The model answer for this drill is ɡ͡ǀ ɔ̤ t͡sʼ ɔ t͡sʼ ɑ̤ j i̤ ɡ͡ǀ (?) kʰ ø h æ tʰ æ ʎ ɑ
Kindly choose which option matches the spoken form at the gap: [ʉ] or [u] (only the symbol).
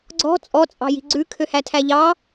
ʉ